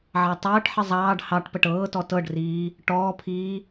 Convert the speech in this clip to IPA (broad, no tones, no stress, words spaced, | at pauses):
ʕɑtˤɤːʈħə zˤɑːɖ hɑʈpəʈ ɤːtɔ tɤɖriː | ʈɔːpʰiː